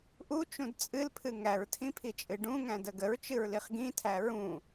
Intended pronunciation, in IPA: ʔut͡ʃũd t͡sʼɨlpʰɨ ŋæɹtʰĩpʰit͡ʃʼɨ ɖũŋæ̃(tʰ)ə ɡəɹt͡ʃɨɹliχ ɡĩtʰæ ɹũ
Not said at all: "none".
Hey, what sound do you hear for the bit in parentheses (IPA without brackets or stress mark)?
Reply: d